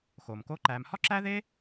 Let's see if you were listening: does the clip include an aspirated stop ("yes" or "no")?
no